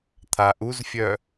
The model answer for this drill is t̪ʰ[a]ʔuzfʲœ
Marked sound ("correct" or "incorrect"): correct